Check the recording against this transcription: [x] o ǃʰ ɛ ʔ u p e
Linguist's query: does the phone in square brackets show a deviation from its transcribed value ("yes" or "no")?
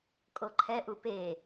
yes